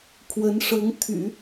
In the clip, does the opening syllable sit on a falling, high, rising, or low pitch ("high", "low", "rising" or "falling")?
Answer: rising